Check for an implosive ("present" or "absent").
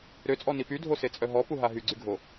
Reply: absent